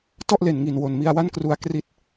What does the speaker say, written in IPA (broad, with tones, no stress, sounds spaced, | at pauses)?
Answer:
t ɔ˥˩ ʔ l e˨˩ n ŋ i˨˩ n w o˨˩ n m i˧ a̯ w a˥˩ n k r u˦˥ a̯ k r i˦˥ t̚